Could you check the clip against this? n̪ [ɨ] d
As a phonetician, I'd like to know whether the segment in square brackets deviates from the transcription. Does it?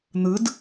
no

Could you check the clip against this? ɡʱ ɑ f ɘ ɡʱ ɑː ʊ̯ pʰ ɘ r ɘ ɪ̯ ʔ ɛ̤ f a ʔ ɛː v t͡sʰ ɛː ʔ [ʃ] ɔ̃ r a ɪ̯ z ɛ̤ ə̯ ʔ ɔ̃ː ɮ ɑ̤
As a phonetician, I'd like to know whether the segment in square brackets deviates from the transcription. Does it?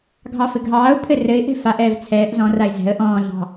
yes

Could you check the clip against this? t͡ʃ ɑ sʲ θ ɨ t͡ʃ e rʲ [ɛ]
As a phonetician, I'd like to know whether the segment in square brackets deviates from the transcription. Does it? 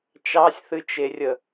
yes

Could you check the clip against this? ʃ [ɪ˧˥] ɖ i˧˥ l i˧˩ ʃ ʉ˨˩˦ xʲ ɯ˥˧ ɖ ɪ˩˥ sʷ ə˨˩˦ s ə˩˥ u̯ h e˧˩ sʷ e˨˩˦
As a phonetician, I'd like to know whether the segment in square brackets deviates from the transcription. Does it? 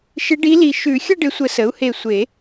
no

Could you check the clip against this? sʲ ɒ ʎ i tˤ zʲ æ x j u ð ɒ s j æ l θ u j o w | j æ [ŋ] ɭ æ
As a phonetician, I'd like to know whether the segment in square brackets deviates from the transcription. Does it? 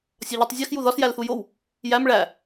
yes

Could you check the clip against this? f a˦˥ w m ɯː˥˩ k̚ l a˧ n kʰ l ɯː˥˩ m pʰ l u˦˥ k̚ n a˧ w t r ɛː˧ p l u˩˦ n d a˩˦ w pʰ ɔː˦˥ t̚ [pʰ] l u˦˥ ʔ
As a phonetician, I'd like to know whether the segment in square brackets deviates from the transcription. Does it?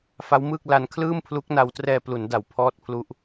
no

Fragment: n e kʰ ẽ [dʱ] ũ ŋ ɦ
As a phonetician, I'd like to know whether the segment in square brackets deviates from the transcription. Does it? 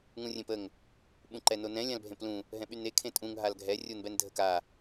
yes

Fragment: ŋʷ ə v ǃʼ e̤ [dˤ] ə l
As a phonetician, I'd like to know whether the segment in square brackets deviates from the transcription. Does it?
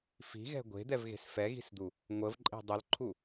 no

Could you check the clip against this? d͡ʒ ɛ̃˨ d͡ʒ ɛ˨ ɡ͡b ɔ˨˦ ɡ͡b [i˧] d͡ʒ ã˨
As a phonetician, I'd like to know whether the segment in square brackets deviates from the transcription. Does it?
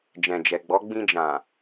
yes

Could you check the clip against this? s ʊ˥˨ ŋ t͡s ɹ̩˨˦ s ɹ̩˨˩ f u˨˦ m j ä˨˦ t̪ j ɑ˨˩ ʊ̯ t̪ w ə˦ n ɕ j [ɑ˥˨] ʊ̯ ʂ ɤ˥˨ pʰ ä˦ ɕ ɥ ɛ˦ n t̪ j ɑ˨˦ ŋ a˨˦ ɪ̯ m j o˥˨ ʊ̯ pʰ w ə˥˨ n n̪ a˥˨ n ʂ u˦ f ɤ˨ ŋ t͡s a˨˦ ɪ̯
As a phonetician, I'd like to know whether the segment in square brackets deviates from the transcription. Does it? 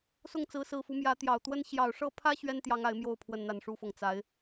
yes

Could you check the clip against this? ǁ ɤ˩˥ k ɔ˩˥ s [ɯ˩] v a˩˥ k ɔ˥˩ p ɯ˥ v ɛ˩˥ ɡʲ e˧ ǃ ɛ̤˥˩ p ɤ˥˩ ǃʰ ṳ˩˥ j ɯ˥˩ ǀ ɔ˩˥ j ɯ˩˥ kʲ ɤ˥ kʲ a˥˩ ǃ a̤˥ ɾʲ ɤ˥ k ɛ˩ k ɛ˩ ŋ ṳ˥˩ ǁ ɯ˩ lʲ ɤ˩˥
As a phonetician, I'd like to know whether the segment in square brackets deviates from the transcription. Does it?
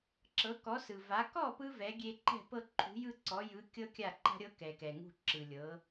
no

